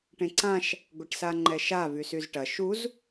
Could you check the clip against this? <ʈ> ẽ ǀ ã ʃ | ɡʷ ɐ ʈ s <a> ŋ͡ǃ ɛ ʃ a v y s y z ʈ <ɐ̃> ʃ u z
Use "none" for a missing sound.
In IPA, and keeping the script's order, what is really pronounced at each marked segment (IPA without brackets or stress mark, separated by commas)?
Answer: ʈ, a, ɐ